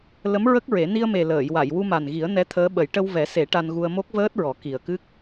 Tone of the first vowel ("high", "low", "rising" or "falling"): rising